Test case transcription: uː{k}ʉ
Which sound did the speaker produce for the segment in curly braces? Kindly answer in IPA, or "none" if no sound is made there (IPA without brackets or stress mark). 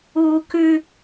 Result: k